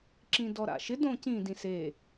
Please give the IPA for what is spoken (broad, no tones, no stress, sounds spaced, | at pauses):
ǁ ĩ d ɔ ɾ a̰ ʃ ɪ d õ c ĩ d ĩ s e